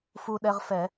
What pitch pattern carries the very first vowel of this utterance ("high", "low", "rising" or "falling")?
high